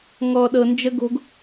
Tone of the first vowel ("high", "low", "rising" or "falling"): low